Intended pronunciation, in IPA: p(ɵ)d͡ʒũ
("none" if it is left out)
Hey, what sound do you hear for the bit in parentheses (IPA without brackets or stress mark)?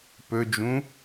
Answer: ɵ